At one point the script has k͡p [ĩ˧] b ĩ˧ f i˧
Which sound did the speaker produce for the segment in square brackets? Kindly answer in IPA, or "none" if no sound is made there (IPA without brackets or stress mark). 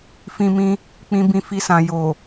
ĩ˧